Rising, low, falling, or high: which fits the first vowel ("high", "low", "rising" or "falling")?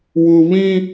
high